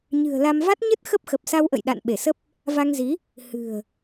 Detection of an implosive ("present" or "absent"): present